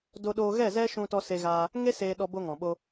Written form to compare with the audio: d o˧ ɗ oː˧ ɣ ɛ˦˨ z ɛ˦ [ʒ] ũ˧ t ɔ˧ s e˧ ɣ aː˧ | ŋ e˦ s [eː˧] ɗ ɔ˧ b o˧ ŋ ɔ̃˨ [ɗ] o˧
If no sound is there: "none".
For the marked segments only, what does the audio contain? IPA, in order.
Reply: ʃ, eː˧, ɓ

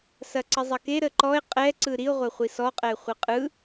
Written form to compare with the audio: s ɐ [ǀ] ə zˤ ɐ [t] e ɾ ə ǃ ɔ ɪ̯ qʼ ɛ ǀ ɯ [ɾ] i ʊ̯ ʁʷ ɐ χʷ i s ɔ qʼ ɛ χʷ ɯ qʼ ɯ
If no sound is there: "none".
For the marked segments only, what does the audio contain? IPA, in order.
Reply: ǀ, k, ɾ

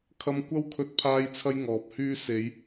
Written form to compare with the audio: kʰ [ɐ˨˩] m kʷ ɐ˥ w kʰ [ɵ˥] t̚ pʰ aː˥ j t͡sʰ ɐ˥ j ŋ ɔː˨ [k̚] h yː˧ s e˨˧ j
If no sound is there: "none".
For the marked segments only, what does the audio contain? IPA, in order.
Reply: ɐ˧, ɵ˧, p̚

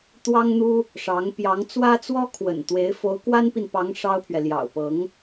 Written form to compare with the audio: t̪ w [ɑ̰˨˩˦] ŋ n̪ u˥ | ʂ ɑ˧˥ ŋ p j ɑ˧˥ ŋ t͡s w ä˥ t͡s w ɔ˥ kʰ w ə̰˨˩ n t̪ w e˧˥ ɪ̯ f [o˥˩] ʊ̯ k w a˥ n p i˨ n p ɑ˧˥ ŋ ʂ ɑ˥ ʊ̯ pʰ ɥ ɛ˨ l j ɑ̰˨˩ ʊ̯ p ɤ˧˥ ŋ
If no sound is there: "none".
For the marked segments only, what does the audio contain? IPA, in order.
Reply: ɑ˥, o˧˥

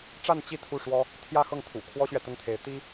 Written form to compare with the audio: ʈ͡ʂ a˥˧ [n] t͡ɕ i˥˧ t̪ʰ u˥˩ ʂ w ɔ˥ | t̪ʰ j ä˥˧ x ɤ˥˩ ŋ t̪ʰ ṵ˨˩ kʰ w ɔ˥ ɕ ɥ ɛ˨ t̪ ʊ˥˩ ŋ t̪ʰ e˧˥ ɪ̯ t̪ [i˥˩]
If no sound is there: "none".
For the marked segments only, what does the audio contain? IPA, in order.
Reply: n, i˥

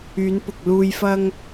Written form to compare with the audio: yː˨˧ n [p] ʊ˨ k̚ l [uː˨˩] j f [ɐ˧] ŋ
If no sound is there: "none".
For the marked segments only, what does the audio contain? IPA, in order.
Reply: p, uː˧, ɐ˧

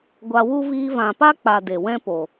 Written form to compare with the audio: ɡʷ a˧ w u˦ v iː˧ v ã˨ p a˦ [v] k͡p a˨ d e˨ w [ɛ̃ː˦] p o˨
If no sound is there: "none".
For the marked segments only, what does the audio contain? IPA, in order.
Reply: none, ɛ̃˦

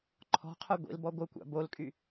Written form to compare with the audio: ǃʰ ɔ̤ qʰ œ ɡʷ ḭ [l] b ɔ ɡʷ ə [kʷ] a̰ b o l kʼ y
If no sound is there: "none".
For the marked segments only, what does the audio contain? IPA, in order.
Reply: l, kʷ

